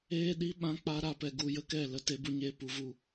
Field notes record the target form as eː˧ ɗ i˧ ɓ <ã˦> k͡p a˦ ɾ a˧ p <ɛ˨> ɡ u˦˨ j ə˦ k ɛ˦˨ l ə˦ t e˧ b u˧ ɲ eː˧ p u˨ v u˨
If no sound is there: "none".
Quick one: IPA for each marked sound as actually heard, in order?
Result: ã˦, ɛ˨

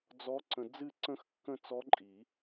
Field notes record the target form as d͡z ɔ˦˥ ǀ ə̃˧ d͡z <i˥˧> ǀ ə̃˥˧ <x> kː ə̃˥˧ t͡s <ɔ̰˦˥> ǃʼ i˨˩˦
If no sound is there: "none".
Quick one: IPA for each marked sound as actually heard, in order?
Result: ɨ˥˧, x, ɔ˦˥

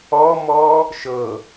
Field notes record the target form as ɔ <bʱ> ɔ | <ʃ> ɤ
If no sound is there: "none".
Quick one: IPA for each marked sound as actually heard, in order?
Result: m, ʃ

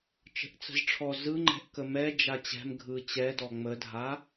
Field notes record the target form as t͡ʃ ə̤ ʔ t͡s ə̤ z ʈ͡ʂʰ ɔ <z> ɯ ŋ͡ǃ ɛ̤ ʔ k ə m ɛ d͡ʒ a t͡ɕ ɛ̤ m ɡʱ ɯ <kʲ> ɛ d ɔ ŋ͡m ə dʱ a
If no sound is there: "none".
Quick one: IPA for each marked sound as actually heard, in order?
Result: z, t͡ɕ

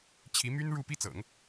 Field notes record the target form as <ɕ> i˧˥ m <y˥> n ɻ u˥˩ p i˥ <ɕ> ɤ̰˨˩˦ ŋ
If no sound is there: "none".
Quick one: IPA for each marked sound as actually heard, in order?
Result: t͡ɕʰ, y˥, t͡s

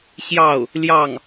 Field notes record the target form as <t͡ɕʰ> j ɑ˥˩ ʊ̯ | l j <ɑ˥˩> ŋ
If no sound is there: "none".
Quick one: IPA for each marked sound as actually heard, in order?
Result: ɕ, ɑ˥˩

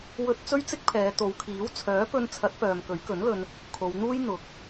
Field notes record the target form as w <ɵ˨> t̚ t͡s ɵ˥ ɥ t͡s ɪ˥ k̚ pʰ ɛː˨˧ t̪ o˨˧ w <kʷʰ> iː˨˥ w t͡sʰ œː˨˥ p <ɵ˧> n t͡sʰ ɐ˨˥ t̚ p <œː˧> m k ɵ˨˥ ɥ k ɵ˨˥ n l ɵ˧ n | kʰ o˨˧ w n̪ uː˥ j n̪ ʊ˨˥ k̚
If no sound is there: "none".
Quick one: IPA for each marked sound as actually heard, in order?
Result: ɵ˧, kʰ, ɵ˧, œː˨

